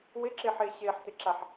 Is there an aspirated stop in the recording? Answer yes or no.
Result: no